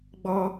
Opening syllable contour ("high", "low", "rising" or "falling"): high